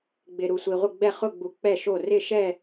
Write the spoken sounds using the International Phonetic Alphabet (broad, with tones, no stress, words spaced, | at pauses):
ɡ͡bɪ˩ ɾu˩sʷi˩ʁʷɪ˧˩ ɡ͡bɛ˧˩χʊ˧˩ɡ͡bu˩ k͡pɛ˧˩ʃo˧˩ rɪ˧˩ʃɛ˧˩